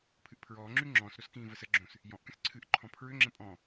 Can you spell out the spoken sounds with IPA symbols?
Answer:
pʰ ɨ ʔ pʰ ɹ ɔː ŋ͡ǁ y ŋ͡ǁ ɔ̃ s ɾ o s k ĩː v ə s ə ɡ͡ǁ õ s | j ɔ̃ ʔ k ə̃ s ǀʰ ɨ ʔ ǃʰ ɔ̃ pʰ ɹ ʏ ŋ͡ǁ ə̃ pʼ ɔ̃

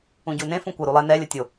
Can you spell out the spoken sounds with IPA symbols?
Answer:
ũ ɟ u n ẽ f ũ kʷ ə ɾ u lˠ ɛ n ɛ lʲ ə tʲ o

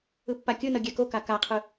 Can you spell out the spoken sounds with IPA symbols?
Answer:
ɯ pː a kʲ ɯ n ʌ ɡʲ ɛ k o k a k a qʰ ɯ

